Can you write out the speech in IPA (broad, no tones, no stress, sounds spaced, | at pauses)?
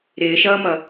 ɾ ɪː ʃ ʌː m ʌ